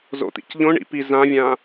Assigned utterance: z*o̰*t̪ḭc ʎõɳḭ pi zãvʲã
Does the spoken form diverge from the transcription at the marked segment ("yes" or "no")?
no